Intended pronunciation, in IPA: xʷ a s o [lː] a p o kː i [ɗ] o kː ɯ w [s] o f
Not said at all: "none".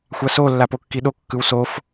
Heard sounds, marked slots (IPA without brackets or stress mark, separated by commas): lː, ɗ, s